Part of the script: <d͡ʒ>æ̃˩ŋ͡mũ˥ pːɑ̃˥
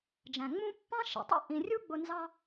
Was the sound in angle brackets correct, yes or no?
yes